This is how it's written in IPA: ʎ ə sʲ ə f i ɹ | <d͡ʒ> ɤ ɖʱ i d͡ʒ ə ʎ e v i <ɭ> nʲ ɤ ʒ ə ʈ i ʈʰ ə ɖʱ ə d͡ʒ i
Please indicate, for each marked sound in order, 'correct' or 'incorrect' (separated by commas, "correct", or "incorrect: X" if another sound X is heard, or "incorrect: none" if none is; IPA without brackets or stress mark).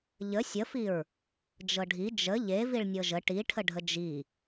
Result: correct, correct